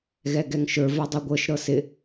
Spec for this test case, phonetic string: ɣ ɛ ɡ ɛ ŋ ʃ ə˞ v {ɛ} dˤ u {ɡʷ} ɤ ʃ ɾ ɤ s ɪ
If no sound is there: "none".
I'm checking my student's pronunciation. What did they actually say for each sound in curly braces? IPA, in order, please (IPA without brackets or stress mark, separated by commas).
ɛ, ɡʷ